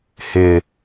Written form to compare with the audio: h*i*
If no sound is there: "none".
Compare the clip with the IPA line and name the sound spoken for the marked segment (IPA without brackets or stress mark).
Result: ɪ